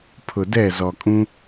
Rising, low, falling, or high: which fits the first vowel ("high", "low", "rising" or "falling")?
low